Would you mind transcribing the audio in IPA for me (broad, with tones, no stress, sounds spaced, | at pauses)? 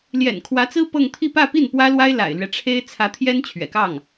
l j ɛ̰˨˩ n kʰ w ä˧˥ t͡s ɹ̩˥ p ɤ˥˧ ŋ t̪ʰ i˥˧ p ä˥˧ p i˥˩ n p w ä˥ l w a˥ ɪ̯ l a̰˨˩ ɪ̯ l ɥ ɛ˦ ʈ͡ʂʰ e˥ ɪ̯ t͡sʰ ä˧˥ t̪ʰ j ɛ˥ n t͡ɕʰ ɥ ɛ̰˨˩ k ɑ˥˩ ŋ